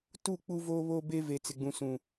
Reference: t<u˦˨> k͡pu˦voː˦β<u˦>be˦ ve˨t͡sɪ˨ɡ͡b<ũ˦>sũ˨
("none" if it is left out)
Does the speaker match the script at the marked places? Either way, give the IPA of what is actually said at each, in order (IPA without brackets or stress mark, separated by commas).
u˦˨, o˦, ũ˨